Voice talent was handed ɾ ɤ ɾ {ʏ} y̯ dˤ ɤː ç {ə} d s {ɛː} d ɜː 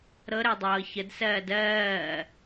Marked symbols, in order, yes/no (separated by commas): no, yes, no